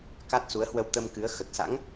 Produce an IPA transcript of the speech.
ka˦˥t̚su˨˦ə̯hwə˧w t̪ə˧mkɨ˨˦ə̯ xə˨˩t̚sa̰˧˥ŋ

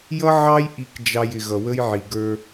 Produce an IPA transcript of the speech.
jʌ˦ ʕɑ˦j ʔi˨kd͡ʒɑ˨j ɪ˨ɣʌ˨wə˦jʕi˨ ɡə˞˦

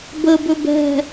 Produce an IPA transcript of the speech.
bəbɵb ɛ̤

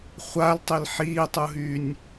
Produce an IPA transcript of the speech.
χʷaltˤil ħiːtˤuɦyːnʲ

